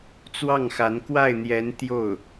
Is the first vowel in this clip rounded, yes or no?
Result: no